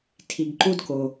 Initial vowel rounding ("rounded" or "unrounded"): unrounded